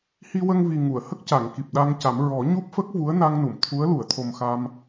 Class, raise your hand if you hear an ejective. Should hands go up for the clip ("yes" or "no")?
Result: no